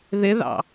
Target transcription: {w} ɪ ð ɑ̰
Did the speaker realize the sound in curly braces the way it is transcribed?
no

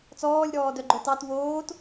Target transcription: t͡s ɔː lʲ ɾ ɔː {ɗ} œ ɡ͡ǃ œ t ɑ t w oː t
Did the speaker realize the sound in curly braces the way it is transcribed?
no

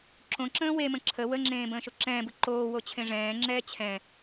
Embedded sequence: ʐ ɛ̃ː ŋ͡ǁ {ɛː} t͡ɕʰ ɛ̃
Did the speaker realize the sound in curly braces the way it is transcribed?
yes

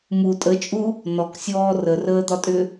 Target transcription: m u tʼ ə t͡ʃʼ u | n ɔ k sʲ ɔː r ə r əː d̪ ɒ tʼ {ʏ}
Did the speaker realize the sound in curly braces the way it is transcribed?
yes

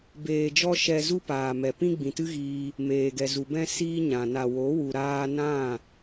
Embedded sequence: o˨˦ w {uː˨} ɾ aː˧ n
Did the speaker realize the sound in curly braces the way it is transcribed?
no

